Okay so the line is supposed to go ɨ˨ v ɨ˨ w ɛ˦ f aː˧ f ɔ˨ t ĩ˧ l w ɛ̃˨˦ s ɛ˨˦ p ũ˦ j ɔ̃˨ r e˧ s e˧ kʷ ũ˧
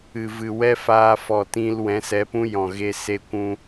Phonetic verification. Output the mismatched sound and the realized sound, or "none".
r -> ɣ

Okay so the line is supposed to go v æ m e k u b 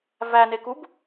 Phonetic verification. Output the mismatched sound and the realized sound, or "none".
m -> n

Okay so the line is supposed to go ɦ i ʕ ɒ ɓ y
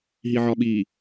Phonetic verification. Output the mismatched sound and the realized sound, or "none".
y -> i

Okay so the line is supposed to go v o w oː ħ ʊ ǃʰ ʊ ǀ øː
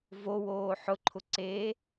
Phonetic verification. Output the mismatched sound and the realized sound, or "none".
øː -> eː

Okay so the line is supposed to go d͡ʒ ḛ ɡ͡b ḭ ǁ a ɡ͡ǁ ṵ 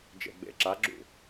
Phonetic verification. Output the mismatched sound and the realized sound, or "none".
ḭ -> ḛ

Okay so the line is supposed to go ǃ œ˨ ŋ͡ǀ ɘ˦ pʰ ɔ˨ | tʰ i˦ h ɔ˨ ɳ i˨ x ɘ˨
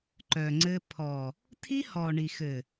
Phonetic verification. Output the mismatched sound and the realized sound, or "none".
none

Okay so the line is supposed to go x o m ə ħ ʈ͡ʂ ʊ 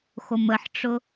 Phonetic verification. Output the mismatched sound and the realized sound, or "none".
none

